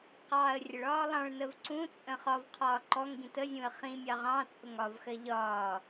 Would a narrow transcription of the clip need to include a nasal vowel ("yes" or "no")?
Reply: yes